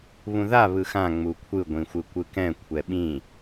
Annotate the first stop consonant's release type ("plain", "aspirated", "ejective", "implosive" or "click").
aspirated